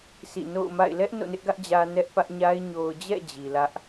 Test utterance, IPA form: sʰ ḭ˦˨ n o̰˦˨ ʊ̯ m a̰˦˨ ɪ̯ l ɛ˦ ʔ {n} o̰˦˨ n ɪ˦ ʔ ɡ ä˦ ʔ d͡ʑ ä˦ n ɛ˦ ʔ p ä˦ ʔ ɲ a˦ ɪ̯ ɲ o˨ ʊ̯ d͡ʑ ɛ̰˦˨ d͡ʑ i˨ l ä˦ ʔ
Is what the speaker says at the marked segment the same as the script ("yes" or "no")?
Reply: yes